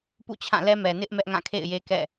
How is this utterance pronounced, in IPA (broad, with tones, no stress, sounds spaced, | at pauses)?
p ṵ˦˨ t͡ɕʰ ã˦˨ l ɛ˦ m ɛ˨ n ɪ˦ ʔ m ɛ˦ ʔ ŋ ã˦˨ kʰ ḛ˦˨ ɪ̯ j e˦ k ɛ̰˦˨